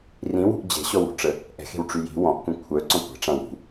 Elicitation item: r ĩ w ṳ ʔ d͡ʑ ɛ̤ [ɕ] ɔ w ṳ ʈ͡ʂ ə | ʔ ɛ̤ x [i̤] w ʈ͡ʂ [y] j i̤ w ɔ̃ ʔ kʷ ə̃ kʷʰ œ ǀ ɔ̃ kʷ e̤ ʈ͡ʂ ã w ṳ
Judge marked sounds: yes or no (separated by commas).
yes, no, yes